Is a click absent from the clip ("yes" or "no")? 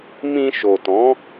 yes